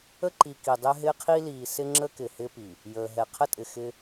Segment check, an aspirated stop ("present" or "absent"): present